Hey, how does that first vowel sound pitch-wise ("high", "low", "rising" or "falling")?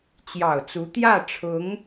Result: low